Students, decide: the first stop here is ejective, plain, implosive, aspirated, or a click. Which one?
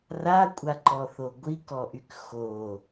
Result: ejective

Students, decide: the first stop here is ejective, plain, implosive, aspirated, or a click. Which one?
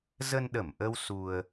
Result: implosive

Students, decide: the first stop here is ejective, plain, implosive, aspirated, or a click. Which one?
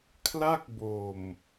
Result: aspirated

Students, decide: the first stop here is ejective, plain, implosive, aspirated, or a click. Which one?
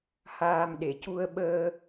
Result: implosive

